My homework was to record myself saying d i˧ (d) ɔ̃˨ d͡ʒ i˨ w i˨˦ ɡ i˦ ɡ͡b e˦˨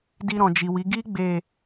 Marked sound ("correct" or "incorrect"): incorrect